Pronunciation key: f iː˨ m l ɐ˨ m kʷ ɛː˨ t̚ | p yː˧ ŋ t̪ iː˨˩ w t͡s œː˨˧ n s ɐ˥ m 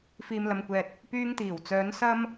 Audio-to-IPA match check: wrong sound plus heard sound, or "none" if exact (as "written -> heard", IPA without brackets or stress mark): none